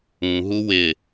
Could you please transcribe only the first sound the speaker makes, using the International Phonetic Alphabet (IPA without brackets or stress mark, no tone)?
ũ